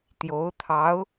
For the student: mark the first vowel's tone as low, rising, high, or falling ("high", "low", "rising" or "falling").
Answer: rising